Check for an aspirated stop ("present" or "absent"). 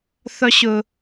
absent